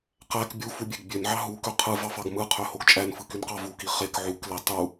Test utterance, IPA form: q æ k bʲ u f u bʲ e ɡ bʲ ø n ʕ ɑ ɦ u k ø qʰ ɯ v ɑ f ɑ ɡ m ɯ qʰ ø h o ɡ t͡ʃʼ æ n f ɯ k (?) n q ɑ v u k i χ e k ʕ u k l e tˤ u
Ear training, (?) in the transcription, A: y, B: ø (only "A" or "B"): A